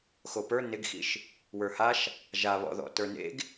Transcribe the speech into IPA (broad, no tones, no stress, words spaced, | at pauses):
xopə˞ nɪɡxḭʃ | wə˞haʃ | ʒaβɔ̰ðɔ̰ tə˞nḛɡ